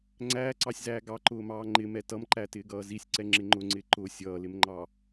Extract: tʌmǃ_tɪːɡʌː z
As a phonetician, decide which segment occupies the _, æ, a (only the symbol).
æ